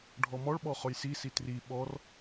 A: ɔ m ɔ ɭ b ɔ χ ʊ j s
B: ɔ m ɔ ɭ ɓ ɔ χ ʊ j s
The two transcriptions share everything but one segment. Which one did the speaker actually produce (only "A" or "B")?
B